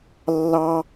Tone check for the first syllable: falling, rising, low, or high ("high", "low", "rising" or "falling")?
high